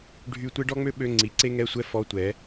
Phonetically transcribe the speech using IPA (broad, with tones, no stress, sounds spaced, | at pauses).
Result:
ɖʱ y˧˥˧ tʷ e˥ ɖ ɔ˥ ŋ͡m ø˥ ɓ ø˧˥˧ ŋ͡ǀ i˩˥ ǀ e˥ ŋ ɛ˧˥˧ sʷ ɛ˥ f ɔ˧˥˧ tʷ ɛ˩˥